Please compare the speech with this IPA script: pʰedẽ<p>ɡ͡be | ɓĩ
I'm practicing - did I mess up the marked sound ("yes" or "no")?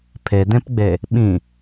no